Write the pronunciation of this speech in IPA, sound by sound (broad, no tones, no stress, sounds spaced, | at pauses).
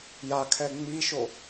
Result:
j a kʰ ɛ ŋ͡m i ʃ o